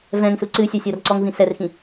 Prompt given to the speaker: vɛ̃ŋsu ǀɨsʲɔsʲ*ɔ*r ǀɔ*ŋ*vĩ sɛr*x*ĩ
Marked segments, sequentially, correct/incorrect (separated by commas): correct, correct, correct